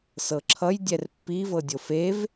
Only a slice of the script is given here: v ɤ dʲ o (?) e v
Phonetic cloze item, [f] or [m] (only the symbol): f